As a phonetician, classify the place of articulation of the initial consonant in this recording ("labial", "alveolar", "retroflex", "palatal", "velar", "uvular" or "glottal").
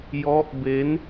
palatal